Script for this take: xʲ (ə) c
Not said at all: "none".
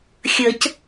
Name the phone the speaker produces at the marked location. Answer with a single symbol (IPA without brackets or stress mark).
ə